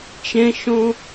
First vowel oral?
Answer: no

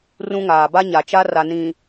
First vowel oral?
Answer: no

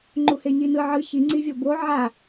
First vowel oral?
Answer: yes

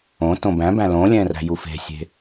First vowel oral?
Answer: no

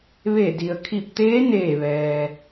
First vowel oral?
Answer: yes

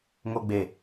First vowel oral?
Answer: yes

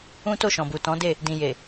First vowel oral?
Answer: no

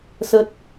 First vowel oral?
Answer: yes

